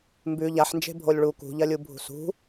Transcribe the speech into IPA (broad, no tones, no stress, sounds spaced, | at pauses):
m b ʉ ʎ a ħ n d͡ʒ e̤ bʱ o lʲ ɭ u k ṳ ʎ ɐ lʲ u bʱ ṳ s ṳ